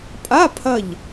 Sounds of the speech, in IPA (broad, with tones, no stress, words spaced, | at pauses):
pʼa˧˥˧pʰɐ˧˩ʎ